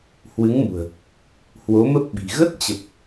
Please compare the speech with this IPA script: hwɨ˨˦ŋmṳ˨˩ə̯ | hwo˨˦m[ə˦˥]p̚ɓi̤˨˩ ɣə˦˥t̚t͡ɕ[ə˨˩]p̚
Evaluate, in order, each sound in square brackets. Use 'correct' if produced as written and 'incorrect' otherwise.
correct, correct

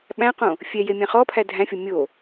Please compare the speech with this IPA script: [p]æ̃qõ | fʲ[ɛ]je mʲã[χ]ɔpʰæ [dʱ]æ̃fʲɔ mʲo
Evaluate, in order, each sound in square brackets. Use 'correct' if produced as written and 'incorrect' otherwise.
incorrect: ɓ, correct, correct, correct

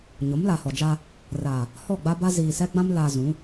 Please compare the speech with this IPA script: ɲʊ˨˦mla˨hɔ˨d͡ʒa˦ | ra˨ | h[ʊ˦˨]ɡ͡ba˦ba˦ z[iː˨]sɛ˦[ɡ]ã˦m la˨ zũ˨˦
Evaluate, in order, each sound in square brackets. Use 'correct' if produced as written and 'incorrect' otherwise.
incorrect: ɔ˦˨, correct, incorrect: ɡ͡b

